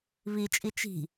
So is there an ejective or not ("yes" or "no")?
yes